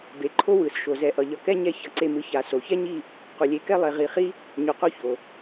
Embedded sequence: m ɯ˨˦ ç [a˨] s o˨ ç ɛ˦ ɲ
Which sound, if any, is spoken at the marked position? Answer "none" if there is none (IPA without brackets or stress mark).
a˨